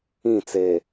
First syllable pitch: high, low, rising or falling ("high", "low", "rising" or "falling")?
falling